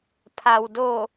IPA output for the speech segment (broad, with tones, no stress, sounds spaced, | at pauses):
pʰ a˩ w d o˧˩